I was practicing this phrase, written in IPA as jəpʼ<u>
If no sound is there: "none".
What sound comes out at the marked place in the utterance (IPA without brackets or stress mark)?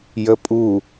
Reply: u